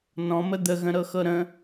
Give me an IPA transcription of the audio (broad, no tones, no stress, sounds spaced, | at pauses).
n ɔ̃ m ə d̪ ə ɣ ə̃ ɾ ɤ x ɤ ɾ ə̃